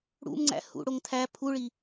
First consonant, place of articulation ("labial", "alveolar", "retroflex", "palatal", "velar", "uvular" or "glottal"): retroflex